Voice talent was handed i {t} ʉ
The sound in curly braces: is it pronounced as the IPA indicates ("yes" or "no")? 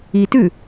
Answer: yes